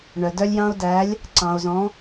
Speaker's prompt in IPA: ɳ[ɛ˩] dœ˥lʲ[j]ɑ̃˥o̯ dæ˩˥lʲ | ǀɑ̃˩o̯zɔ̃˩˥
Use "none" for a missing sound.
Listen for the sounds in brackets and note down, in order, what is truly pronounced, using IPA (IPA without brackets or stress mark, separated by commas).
œ˩, j